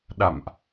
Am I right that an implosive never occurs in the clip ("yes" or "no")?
no